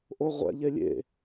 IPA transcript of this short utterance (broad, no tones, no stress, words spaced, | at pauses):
ʔoʁʷɛ̰ ʎelʲḛ